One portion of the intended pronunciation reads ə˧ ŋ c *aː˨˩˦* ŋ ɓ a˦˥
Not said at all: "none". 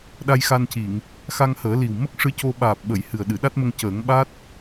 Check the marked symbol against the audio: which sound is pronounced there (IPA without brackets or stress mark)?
əː˨˩˦